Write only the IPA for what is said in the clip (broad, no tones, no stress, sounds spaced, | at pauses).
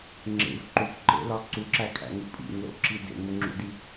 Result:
ŋ͡ǁ ḛ v ǃ u k ǃ ḛ l ɒ ǀ u ǁ æ kʰ æ̰ ŋ u pʼ ḭ ŋ l o̰ ǁ i d ḛ ŋ o ŋ͡ǁ ṵ d i